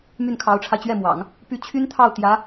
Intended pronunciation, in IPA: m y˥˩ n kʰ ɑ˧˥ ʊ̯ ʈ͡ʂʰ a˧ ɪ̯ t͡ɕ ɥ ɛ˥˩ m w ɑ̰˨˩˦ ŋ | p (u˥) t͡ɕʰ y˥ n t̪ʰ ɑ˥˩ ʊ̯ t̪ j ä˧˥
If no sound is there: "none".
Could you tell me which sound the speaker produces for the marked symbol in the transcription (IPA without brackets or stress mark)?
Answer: y˥